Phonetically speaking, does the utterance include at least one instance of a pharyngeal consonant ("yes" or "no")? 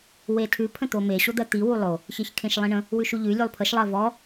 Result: no